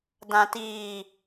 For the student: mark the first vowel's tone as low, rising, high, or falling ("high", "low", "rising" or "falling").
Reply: low